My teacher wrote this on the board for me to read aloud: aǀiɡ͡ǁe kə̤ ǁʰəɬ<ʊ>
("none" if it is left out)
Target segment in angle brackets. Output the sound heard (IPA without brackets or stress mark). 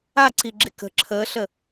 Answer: ə